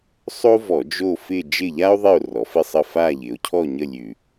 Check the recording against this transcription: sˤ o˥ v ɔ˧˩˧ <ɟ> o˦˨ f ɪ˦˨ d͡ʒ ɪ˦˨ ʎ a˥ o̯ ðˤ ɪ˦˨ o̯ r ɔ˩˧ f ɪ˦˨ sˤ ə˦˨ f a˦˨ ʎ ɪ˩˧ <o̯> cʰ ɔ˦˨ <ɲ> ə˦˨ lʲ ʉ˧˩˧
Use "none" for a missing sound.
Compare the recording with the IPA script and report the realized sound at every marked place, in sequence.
d͡ʒ, o̯, ɲ

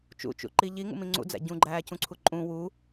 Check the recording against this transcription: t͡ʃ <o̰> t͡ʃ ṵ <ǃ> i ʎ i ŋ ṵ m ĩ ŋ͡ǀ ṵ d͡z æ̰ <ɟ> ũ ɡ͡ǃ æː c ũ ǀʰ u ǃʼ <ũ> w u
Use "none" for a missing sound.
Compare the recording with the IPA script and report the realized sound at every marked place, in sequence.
ṵ, ǃ, ɟ, ũ

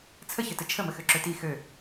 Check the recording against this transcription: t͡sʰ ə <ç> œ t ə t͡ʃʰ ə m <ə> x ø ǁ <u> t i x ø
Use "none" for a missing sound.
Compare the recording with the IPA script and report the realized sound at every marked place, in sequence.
ç, ə, ø

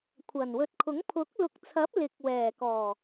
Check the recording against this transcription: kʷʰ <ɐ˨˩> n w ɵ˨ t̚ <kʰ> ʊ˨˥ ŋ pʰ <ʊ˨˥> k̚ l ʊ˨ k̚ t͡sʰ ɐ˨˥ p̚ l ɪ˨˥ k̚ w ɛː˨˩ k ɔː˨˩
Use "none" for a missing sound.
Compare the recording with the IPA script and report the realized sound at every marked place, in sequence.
ɐ˨˩, kʰ, ʊ˨˥

